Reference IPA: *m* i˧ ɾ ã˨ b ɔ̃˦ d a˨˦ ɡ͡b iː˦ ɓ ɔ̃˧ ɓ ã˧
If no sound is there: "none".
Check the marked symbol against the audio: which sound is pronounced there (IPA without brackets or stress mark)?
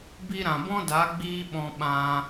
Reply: b